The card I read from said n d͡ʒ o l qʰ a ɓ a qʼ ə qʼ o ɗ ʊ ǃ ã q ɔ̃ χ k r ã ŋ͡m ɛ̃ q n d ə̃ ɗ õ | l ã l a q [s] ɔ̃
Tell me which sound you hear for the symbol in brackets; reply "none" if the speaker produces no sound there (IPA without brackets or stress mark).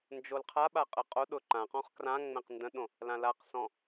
s